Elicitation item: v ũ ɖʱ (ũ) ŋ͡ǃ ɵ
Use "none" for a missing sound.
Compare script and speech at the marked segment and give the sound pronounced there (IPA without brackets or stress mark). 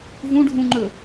ũ